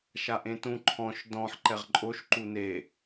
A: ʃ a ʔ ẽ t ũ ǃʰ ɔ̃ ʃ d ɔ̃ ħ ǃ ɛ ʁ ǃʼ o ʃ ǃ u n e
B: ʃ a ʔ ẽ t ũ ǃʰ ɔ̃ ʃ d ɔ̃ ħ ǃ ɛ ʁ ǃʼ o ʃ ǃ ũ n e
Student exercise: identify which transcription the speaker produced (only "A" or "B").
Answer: A